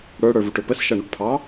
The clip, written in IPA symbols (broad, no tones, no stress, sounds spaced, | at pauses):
ɽ ə˞ ɽ ə˞ v u ʈ ʊ p ə s ʃ ʌ ɳ u ʈ pʰ ɑ